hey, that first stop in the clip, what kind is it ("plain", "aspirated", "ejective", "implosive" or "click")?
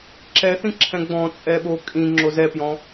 click